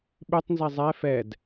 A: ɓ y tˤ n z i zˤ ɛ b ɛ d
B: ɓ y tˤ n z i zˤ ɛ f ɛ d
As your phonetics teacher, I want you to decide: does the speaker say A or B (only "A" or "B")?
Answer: B